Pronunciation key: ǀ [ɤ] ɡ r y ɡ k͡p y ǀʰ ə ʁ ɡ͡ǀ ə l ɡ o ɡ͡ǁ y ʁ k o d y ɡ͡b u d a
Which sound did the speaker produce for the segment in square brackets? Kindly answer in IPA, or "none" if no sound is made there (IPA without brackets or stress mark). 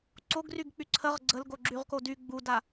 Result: o